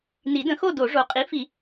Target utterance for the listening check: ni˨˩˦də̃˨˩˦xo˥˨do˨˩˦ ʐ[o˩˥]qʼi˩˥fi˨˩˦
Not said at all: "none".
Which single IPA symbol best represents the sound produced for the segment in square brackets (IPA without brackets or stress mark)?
o˩˥